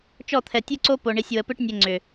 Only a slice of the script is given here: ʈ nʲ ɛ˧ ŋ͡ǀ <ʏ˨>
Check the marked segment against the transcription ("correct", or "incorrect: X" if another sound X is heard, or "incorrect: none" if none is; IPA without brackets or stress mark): correct